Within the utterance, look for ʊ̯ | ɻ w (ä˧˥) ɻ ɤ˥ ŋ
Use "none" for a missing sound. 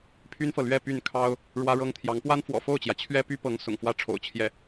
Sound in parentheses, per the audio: ä˥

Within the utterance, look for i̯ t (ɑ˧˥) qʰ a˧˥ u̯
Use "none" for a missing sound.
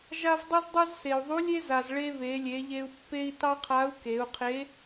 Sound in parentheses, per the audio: ɑ˥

